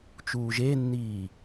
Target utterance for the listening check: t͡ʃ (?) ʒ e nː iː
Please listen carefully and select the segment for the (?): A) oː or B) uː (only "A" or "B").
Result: B